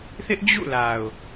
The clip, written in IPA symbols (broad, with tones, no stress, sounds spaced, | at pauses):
θ ɪ˦ ʔ d͡ʑ ṵ˦˨ l a˨ ʊ̯